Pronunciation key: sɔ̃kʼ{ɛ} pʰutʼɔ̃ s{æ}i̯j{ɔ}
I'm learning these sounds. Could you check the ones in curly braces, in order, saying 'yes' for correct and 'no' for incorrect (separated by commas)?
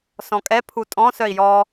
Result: yes, no, yes